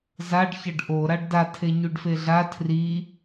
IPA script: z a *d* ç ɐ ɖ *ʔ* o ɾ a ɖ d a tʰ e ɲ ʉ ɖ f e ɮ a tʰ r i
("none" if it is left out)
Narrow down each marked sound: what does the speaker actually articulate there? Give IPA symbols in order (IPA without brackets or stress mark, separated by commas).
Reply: ɖ, ʔ